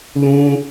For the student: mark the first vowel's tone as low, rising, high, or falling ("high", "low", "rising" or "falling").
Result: high